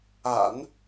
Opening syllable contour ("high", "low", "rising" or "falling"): low